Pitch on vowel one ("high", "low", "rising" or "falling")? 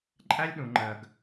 high